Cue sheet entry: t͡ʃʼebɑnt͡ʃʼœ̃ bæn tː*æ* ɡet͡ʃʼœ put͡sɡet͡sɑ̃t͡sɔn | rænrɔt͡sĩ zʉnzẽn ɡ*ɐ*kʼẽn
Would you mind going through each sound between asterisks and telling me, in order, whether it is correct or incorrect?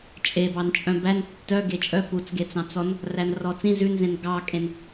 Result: incorrect, incorrect

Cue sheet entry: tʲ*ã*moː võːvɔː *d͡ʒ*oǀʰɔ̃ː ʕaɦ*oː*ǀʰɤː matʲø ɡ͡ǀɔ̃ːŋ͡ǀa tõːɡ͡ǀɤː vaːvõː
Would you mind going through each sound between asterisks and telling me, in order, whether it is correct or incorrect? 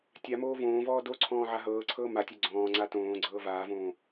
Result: incorrect, incorrect, incorrect

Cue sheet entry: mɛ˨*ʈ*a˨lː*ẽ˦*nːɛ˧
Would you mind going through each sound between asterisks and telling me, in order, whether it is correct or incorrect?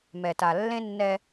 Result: incorrect, correct

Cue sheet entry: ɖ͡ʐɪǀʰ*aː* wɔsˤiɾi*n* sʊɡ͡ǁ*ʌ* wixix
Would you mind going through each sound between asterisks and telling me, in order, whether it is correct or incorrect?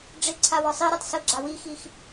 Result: incorrect, incorrect, incorrect

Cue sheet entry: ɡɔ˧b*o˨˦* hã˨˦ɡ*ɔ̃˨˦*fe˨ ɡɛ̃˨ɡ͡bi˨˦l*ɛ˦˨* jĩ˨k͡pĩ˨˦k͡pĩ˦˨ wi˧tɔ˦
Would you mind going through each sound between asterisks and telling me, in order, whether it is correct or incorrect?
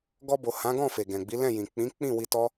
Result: incorrect, incorrect, incorrect

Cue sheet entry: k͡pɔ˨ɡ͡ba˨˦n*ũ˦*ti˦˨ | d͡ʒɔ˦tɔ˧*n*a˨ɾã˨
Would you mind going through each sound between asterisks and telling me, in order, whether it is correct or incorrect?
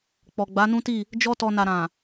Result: correct, correct

